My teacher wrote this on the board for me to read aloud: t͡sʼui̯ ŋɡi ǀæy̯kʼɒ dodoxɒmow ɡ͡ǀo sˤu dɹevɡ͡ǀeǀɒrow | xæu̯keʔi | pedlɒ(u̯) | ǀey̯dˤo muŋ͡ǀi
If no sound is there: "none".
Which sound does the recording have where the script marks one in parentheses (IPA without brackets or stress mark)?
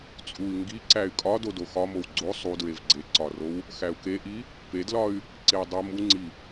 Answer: y̯